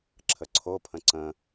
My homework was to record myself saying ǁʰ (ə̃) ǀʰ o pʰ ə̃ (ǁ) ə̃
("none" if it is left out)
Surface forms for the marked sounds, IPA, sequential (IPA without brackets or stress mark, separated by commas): ə, ǀ